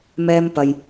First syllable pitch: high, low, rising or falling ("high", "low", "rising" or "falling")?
high